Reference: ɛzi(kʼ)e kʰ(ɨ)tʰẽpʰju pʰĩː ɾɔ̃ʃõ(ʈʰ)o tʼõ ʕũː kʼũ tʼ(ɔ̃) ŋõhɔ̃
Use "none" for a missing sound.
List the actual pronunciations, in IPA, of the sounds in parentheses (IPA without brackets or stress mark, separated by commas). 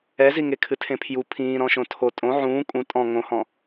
ŋ, ɨ, tʰ, ɔ̃